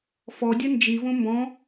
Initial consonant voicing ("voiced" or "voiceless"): voiceless